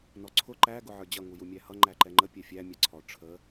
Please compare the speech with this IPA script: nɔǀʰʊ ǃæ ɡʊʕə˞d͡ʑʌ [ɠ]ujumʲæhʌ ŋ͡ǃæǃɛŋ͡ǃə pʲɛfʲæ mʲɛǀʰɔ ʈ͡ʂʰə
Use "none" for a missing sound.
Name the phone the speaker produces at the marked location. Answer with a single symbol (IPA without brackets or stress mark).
ŋ